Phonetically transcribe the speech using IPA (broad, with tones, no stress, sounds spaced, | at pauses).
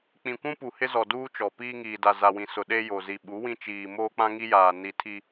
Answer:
k͡p ĩ˨ kʷ ũ˦ p u˨ h ɪ˦ z ɔ˨ d uː˦ t͡ʃ ɔ˨ p iː˦ ŋ iː˨ d a˨ z a˨ w ĩ˨ s ʊ˨ ɗ eː˦ j o˨ z i˨ ɓ u˨˦ w ĩ˦ t͡ʃ iː˨ m oː˦ k͡p ã˦ ŋ i˦ j aː˨ n i˨ tʰ i˦